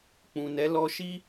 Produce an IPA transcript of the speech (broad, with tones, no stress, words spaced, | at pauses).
k͡pũ˨nɛ˨˦ lɔ˧ʃi˦